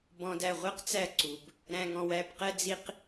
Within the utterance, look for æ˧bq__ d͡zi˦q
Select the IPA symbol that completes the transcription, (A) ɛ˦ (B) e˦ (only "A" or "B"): A